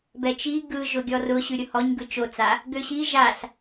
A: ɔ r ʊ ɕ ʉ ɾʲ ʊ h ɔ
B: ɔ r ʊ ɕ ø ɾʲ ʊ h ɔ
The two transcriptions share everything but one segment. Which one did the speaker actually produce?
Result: A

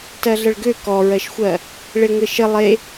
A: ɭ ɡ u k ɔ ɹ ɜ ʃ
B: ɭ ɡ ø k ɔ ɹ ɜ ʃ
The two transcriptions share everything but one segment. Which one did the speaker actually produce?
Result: B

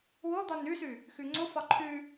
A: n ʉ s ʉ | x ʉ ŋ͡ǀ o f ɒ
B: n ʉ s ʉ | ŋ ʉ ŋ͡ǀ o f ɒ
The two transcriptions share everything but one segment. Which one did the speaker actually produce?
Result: A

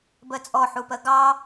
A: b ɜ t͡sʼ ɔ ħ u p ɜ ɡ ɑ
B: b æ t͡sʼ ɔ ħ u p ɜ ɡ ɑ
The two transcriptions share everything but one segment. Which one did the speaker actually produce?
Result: A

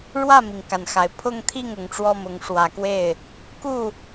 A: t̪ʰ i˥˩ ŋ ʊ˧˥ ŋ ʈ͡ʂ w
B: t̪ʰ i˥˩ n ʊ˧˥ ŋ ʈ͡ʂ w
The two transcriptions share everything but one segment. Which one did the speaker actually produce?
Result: A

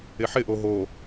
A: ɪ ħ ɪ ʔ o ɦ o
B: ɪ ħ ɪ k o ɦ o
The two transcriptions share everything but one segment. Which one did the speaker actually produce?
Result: A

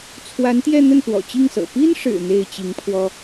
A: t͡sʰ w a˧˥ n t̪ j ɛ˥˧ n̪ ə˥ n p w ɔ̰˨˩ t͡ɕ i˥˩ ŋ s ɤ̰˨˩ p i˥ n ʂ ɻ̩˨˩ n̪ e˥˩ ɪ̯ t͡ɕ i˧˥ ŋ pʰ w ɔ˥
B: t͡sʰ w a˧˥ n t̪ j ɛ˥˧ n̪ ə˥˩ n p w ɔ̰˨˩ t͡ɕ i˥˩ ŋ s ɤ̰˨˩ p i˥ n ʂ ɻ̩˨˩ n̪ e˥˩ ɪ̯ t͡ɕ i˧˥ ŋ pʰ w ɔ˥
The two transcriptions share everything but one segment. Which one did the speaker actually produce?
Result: B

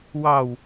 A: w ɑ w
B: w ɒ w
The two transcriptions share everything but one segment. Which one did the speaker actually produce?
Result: A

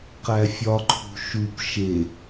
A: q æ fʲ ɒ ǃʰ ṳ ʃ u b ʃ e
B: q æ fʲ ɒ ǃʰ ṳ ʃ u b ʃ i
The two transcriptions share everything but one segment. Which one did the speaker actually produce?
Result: A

